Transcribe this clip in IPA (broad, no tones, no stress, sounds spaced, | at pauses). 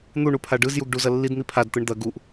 n̪ u ɳ u pʰ a ɖ ɯ z j u ɡ ɖ u z ɐ lː i d n̪ i pʰ a d t̪ ɯ ɳ d̪ ɐ ɡ u ʔ